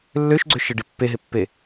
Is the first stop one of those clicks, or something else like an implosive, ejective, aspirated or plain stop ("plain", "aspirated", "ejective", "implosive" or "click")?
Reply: click